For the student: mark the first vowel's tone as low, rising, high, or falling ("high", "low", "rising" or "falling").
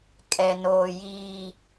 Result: low